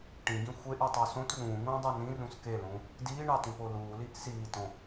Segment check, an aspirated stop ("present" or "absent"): absent